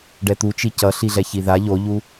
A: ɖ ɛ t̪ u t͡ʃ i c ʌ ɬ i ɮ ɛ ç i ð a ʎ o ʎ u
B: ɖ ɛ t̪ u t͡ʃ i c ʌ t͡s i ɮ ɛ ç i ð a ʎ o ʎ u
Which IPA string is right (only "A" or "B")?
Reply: A